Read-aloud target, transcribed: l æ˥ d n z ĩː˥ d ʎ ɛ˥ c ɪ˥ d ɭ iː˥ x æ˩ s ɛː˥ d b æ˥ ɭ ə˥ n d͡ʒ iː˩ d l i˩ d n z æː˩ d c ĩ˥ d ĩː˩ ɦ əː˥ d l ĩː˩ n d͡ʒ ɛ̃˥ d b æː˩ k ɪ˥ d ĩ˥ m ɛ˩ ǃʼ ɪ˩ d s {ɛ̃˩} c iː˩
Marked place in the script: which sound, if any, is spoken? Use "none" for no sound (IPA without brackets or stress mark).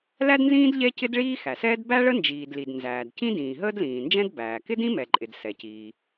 ɛ˩